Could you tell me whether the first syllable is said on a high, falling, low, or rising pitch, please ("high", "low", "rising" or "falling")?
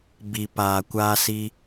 low